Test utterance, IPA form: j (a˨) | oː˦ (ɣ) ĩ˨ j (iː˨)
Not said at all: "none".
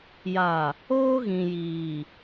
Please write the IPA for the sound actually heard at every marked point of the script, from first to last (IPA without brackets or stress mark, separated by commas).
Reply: a˨, ɣ, iː˨